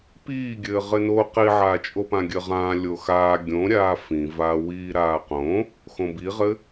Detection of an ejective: present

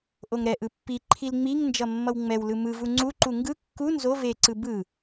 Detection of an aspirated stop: present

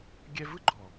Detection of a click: present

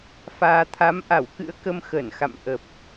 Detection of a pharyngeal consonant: absent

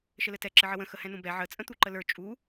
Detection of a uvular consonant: absent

